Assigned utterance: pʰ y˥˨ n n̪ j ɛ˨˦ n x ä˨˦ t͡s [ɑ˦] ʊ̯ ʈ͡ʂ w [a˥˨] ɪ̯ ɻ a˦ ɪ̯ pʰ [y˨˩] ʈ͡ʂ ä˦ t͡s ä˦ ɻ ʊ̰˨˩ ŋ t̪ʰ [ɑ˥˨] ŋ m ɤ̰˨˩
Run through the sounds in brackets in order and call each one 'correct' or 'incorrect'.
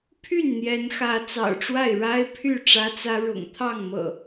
incorrect: ɑ̰˨˩, correct, incorrect: y˥˨, correct

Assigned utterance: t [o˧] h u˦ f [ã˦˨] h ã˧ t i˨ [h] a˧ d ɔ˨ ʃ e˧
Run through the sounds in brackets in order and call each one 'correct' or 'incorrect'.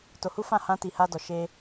correct, correct, correct

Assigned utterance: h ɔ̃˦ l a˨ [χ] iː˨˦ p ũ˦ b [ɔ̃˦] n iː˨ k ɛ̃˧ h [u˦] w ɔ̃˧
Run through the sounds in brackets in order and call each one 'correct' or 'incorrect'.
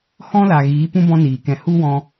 incorrect: ɣ, correct, correct

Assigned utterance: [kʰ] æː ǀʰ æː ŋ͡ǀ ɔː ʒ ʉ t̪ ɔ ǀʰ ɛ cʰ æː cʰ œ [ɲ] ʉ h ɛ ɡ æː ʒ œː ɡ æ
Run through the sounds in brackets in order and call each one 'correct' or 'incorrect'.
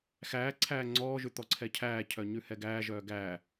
incorrect: x, correct

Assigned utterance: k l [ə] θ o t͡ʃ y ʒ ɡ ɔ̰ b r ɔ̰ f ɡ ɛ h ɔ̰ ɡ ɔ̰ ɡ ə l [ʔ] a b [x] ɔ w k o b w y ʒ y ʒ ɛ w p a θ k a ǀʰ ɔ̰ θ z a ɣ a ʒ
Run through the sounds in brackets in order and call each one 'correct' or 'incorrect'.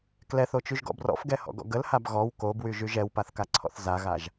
incorrect: ɛ, incorrect: h, incorrect: ɣ

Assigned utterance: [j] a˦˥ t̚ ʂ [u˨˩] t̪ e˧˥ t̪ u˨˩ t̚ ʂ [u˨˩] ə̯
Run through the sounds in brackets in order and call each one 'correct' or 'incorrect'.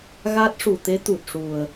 incorrect: ɣ, correct, correct

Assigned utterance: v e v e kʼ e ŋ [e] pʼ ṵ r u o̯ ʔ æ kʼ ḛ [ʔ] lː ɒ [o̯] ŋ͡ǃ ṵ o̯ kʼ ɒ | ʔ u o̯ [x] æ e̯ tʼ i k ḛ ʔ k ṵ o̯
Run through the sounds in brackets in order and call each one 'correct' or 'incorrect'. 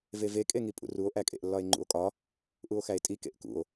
incorrect: i, correct, incorrect: e̯, correct

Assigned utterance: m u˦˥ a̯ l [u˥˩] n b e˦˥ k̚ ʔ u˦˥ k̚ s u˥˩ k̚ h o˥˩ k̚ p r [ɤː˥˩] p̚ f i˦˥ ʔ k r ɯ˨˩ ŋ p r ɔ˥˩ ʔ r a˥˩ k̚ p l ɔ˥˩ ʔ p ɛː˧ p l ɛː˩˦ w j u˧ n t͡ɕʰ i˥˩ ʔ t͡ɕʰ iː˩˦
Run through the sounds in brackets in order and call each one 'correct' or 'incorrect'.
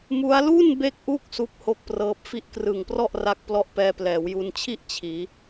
correct, incorrect: ɤː˦˥

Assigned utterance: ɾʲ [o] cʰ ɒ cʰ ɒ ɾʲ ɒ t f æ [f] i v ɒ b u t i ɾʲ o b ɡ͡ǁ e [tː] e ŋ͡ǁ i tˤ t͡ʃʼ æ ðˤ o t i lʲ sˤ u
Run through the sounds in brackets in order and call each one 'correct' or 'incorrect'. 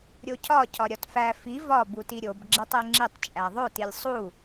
correct, correct, incorrect: tˤ

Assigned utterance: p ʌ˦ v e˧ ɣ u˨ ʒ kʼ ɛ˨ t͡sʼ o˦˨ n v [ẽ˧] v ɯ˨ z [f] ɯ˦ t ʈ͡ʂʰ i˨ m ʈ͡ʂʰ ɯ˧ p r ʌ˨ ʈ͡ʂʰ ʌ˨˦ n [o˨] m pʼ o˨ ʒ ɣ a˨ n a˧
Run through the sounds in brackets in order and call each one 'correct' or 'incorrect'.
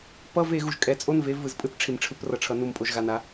incorrect: e˧, incorrect: pʼ, incorrect: u˨

